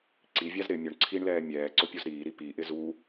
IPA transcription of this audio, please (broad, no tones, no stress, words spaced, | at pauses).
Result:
ǀivʲaz ɾɪ mʲʊɳ ǀʰiɳlɛː mʲɛː ǀʊpʲuzɾiːɾi piʔɪ zu